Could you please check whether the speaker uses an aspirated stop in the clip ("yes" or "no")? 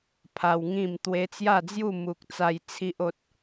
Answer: yes